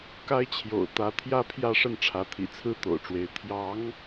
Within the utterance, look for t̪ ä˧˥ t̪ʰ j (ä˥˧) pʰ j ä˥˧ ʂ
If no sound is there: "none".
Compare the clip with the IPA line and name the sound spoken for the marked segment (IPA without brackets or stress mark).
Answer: ä˥